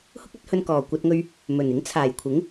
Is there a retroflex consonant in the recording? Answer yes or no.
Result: no